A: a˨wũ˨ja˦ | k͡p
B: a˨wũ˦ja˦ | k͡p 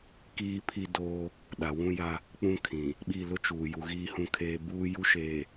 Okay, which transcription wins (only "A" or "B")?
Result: B